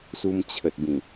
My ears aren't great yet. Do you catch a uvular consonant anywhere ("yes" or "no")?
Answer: no